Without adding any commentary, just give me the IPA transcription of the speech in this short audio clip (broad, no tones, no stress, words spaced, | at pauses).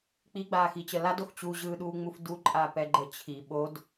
k͡piɡ͡baːxit͡ɕə ladox t͡ɕuʑɯːɗuːŋ͡muf duǃʼapɛɡ͡ǃə t͡ɕʰi ɓod